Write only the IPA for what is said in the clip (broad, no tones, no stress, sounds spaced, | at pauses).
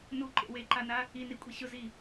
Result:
n u ǃ ḛ w e ǃ a n a | i n i kʷʼ i ɕ ʊ z i